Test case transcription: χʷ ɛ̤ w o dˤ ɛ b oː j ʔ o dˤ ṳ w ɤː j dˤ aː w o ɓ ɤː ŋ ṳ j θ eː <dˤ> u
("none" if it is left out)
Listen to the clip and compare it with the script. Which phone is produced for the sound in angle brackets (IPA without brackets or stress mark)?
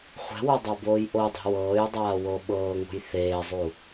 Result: zˤ